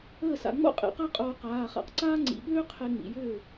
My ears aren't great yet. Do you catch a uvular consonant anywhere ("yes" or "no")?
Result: yes